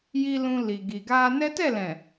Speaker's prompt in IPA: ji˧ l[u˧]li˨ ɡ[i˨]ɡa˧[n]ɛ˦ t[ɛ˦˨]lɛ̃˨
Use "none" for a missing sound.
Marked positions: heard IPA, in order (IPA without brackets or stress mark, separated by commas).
ũ˧, i˨, n, ɛ˦˨